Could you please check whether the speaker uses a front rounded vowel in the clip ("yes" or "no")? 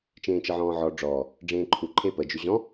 yes